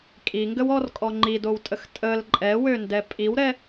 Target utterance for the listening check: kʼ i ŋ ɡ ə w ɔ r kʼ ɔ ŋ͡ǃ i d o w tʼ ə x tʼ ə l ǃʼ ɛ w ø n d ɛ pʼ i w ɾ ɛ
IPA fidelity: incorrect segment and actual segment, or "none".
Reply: none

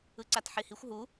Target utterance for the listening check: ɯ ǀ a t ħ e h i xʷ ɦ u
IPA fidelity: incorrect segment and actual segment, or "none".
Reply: none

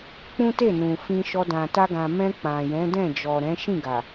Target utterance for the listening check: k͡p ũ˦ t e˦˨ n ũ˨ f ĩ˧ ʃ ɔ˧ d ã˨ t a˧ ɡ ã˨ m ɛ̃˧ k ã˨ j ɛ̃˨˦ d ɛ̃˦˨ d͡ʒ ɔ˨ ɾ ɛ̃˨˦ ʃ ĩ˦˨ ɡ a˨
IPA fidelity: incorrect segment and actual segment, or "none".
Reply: k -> k͡p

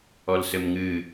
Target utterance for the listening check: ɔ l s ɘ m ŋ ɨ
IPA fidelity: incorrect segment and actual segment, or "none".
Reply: none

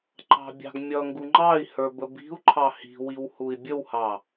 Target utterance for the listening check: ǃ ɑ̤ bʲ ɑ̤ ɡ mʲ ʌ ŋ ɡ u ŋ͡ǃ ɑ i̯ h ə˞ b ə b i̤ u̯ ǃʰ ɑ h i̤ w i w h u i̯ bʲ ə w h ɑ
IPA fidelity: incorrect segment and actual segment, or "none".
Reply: none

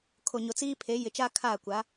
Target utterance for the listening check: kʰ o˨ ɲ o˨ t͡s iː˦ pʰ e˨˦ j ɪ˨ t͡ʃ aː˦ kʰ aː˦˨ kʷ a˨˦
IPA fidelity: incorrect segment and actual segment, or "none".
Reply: none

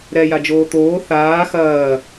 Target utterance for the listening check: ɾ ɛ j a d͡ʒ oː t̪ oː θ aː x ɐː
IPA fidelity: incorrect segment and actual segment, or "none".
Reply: none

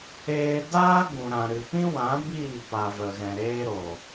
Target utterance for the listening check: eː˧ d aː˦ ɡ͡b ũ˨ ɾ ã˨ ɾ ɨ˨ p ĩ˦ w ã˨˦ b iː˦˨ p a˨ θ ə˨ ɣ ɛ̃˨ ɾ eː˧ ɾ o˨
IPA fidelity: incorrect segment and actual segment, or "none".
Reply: θ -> v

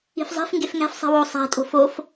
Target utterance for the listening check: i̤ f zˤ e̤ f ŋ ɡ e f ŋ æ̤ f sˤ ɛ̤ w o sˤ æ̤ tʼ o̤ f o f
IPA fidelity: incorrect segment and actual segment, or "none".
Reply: ɛ̤ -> e̤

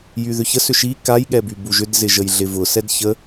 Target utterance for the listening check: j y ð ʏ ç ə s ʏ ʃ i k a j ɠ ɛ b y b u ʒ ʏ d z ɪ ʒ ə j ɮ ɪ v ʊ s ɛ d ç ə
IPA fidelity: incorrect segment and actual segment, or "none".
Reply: none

